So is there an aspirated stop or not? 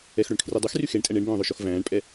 yes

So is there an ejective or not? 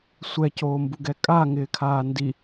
yes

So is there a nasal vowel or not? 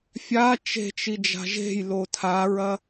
no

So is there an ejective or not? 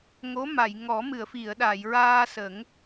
no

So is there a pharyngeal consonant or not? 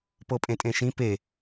no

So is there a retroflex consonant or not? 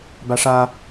yes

